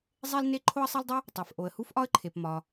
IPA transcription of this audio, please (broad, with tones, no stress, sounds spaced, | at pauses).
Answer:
zˤ e˥ l n e˥ ǃʰ o˥ ə̯ sˤ e˥ l dˤ u˥ | tˤ e˩ f ʔ o˩ ə̯ h u˥ f ʔ ɒ˥ ə̯ ǃʰ e˩ p m ɒ˩